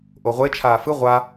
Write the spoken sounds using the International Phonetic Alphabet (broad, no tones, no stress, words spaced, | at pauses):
ʔoʁʷe t͡ʃʰaːfɯ ʁʷa